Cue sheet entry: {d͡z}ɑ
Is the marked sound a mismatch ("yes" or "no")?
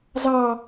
yes